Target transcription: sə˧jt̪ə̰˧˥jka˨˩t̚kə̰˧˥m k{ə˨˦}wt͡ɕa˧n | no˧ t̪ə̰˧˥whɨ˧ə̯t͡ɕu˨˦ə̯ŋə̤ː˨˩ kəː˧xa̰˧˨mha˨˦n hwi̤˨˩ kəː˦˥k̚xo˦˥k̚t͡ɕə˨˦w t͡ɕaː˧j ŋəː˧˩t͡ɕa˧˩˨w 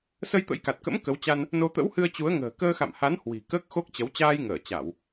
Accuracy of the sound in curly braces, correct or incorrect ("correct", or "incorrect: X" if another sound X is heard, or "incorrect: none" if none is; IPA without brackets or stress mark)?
correct